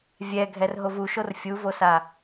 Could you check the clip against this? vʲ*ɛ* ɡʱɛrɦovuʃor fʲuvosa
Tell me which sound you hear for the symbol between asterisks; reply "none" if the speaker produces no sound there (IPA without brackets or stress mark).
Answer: ɛ